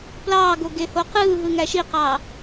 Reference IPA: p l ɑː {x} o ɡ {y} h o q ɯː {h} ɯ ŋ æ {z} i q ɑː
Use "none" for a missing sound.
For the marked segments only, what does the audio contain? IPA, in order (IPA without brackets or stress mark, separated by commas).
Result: ɡ, e, ɦ, ʃ